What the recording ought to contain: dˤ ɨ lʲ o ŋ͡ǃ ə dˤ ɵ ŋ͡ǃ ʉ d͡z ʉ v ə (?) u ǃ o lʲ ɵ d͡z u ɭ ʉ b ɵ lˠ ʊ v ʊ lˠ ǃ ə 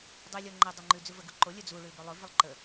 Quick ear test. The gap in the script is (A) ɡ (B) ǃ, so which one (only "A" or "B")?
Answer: A